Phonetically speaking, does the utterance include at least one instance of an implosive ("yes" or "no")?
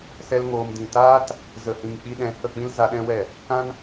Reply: yes